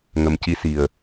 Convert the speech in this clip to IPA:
ŋə˨˩mci˧˥ si˨˩ə̯

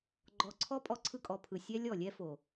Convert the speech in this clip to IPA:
ɡ͡ǃɔ˨ǀʰɔ˦ pʼɔ˦ǀʰɯ˦kʼɔ˨ pʰɯ˨ sʲɛ˦lʲɔ˦˨lʲɛ˦fo˨

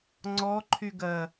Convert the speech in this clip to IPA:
ŋ͡ǀɔǃʰy ɡɜ

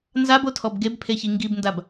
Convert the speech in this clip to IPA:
nzabotʰɔb ɡebpʰeçi ŋɡibndab

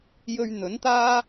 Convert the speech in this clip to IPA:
jɵ˧ɥn̪ɵ˨˥nt̪aː˥

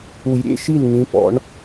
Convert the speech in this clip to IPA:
u˨˩˦jɾʲḛ˧˥˧ʃi˥˩l ŋĩ˨˦pɔ̰˨˦ɳ

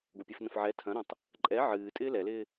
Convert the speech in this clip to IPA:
ɡʷɐpʲɛfnə̃fʕɛ tʰɐ̃ɾõtˤ | ǃʼɛ ʕɨːtʼɪː lɛlɪː

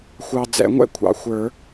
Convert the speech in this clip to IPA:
xʷɑ˨d͡zɛ̰˨˩˦ŋʷɛ̰˥˧ kʷʰɑ̰˨xʷə˞˨˩˦

